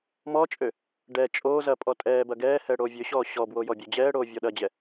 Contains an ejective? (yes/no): yes